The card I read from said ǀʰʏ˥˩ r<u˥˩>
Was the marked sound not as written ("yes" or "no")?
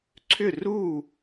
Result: no